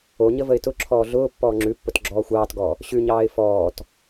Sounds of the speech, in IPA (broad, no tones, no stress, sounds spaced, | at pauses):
o ɲ ə v ə ɪ̯ t ʊ ǁʰ ɔː ɮ ʊː pː ɔː ŋ͡ǁ ʉ pː ʊ t ɡ͡ǁ ɔː xʷ ɑː t ɡ ɔ | ɕ ʉ ɲ ɑː ɪ̯ f ɔː t